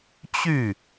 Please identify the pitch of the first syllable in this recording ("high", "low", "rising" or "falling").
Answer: falling